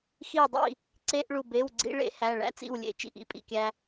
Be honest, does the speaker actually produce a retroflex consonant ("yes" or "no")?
yes